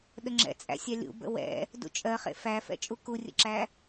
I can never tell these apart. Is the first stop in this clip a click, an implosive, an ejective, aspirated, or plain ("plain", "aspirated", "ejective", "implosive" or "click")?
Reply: implosive